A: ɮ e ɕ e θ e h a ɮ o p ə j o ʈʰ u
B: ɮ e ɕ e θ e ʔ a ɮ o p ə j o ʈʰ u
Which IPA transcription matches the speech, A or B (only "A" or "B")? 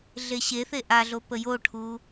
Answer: B